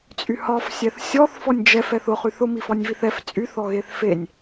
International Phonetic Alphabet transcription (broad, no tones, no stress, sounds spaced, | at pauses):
t͡sʼ y h ɒ f sʲ ɛ θ sʲ ɔ θ f ɔ nʲ d͡ʒ ɛ f ɛ θ ʊ χ y θ ʊ m i f ɒ nʲ v i θ ɛ f t͡sʼ y θ ɔ ɣ e θ f e nʲ